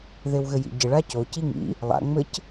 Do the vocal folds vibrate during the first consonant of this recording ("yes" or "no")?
yes